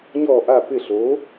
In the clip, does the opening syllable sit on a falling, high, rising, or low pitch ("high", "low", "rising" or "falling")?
falling